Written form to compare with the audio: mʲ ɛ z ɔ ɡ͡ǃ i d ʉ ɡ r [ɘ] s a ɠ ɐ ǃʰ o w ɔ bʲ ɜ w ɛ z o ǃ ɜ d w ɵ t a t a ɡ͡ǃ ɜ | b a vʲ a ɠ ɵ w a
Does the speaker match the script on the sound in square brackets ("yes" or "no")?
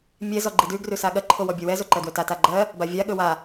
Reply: no